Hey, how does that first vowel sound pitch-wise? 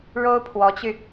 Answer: high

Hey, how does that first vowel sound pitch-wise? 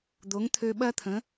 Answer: rising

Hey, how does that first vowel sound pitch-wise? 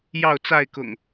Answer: falling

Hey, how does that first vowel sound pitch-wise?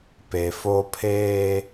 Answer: low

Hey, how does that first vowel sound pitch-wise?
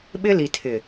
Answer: high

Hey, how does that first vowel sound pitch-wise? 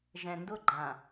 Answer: low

